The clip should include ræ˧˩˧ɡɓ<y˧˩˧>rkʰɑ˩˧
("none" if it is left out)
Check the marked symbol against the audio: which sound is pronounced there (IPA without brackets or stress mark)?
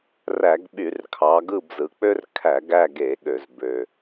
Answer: y˧˩˧